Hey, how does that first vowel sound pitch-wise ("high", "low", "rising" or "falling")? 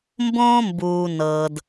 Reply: high